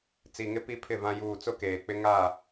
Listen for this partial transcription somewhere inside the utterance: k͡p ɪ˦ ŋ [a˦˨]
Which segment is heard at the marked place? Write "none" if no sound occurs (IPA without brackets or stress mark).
a˦˨